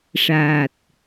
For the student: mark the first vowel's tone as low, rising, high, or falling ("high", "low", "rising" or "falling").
low